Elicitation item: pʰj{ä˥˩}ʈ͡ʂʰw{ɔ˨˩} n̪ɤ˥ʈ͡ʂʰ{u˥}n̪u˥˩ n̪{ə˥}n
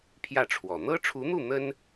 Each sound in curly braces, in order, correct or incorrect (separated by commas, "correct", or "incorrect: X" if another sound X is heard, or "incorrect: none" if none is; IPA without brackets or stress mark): correct, correct, incorrect: u˧˥, correct